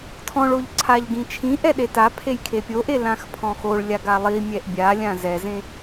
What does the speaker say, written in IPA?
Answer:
tʰ ɔ̃ ɭ o ʎ ǀʰ a ʎ ɡ ĩ t͡ʃʰ ĩ ʔ ɛ ɗ e t a pʰ e j kʰ e pʲ o ʔ e l ã x pʰ ɔ̃ x o ɭ lʲ a ɡ a lˠ i mʲ ɛ ʔ bʲ a lʲ ã z ɛ z ẽ

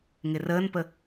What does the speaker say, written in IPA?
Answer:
ŋ ɪ r əː n p ə

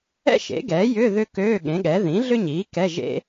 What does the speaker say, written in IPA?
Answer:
ɛ̰˥ ʃ ḛ˩˥ ɡ ɛː˩˥ j ʏ˧˥˧ ð ʏ˥ k øː˧˥˧ ɠ ẽ˩˥ ɠ ɛ˩˥ ð ĩ˩˥ ɮ ʏ˥ ɲ iː˩˥ k ɛ˧˥˧ ʒ ḛ˥

